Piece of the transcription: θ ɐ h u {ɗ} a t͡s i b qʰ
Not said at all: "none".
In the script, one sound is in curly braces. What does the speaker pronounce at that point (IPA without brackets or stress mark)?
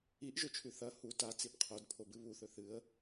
t